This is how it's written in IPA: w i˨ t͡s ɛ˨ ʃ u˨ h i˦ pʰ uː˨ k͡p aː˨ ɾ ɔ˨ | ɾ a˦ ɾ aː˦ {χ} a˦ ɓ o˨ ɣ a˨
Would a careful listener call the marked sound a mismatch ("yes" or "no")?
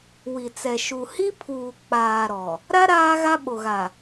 yes